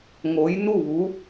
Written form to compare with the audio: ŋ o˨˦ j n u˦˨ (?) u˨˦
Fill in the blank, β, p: β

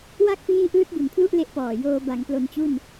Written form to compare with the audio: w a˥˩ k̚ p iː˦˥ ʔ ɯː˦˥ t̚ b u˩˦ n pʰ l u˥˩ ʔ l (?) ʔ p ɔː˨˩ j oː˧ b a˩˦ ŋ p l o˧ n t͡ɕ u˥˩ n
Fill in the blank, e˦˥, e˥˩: e˦˥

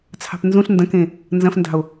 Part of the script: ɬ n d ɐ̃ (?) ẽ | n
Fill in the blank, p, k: k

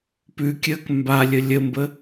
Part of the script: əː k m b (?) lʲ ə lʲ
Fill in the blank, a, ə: a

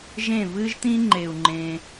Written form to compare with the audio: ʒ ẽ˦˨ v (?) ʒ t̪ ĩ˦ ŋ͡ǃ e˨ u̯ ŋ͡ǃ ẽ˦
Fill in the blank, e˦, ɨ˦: ɨ˦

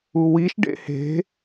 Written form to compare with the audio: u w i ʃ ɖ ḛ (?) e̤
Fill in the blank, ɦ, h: h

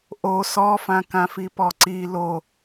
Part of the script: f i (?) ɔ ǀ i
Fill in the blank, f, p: p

